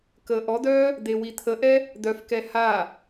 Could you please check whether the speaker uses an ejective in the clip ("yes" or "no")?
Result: no